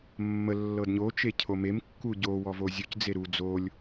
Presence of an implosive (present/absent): absent